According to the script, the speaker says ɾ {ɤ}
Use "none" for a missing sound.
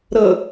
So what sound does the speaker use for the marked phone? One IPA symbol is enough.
ɤ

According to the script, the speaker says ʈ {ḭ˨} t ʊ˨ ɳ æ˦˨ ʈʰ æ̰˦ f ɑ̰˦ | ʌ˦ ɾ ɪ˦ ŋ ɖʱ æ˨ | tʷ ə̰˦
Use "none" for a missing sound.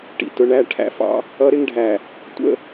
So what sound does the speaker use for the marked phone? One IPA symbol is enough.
ḭ˨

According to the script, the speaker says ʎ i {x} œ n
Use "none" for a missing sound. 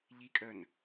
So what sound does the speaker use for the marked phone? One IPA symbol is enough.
kʼ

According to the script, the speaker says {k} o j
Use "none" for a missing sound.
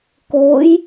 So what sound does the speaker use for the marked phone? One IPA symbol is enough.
k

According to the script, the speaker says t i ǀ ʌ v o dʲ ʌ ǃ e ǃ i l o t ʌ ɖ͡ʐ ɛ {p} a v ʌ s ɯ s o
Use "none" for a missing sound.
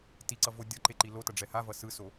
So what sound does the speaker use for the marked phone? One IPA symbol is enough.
h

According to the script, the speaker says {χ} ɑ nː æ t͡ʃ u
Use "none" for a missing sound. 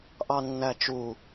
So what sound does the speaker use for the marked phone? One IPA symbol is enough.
ʔ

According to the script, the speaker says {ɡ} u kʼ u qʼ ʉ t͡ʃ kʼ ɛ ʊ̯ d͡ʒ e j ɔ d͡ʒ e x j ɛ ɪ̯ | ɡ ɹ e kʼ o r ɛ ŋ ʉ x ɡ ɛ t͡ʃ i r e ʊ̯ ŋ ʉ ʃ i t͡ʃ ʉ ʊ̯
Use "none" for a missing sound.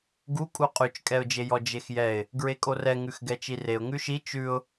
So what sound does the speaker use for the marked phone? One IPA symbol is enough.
ɡ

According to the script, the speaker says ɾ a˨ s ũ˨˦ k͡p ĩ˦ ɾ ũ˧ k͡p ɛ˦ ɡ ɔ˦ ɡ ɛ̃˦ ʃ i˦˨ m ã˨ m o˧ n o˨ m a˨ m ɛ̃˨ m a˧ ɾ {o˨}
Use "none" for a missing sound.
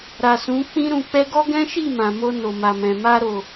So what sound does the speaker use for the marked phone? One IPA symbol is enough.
o˨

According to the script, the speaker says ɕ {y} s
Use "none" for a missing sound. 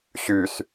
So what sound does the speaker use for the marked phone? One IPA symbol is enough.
y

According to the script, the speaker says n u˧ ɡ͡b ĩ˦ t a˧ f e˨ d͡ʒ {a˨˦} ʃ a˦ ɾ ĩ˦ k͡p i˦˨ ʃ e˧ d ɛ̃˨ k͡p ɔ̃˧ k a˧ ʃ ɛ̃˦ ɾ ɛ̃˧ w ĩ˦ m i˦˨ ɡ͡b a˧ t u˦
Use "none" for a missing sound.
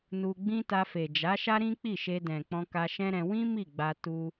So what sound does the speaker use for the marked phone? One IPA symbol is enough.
a˨˦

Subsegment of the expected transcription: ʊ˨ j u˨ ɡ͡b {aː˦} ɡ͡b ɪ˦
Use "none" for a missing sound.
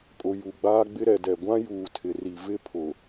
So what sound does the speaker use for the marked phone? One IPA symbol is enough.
aː˦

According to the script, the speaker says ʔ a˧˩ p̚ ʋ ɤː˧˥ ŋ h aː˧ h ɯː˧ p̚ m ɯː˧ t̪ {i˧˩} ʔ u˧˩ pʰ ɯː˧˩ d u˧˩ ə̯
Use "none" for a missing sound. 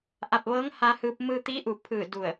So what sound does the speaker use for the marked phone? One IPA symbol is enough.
i˧˥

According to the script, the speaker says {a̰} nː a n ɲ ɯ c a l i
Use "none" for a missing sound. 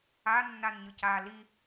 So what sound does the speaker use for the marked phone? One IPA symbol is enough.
a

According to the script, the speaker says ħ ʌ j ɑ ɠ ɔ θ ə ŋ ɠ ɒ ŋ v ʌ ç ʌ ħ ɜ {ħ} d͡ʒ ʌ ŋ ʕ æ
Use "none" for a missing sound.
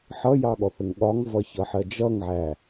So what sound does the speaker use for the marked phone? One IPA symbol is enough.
none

